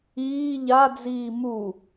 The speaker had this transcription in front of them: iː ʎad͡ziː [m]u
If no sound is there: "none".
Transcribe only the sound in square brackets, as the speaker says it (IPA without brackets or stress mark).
m